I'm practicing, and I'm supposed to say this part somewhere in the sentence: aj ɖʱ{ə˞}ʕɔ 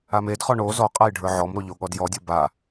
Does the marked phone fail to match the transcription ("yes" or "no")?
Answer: no